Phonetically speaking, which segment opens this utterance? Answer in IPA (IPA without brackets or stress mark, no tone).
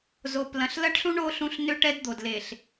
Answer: z